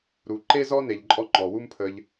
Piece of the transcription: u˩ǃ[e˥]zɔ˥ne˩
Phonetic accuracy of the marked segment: correct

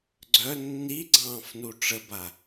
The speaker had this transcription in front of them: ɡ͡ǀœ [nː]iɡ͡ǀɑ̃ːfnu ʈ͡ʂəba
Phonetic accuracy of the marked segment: correct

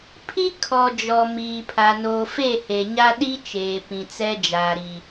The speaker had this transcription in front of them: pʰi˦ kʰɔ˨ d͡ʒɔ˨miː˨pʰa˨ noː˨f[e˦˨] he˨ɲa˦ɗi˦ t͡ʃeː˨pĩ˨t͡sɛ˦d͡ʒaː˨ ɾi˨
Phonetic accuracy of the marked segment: correct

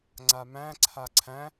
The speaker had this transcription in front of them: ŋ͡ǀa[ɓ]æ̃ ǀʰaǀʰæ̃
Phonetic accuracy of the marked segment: incorrect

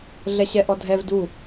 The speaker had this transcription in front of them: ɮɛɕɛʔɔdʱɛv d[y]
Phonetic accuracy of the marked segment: incorrect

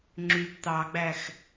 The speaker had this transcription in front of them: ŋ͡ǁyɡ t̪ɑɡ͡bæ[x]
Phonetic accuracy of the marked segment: correct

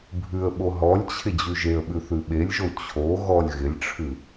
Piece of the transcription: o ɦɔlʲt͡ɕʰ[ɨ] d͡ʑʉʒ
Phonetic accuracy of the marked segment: incorrect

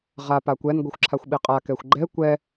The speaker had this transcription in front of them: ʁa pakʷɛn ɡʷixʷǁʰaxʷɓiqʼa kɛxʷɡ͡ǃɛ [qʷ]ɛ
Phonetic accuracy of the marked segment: incorrect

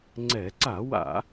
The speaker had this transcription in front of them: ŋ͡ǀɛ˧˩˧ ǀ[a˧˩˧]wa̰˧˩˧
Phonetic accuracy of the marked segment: correct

